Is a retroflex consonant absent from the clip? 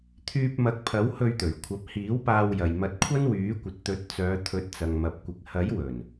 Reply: yes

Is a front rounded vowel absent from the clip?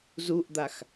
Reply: yes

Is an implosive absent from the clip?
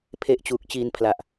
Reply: yes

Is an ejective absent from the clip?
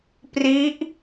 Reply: yes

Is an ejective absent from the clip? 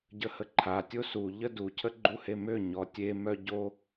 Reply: yes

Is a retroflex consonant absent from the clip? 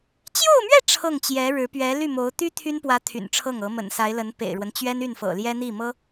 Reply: no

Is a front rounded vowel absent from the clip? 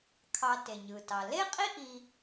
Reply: yes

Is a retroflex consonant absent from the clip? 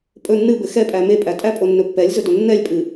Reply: yes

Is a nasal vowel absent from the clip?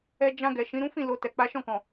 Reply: no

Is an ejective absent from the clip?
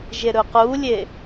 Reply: yes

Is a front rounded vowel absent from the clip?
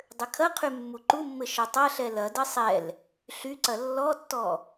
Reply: no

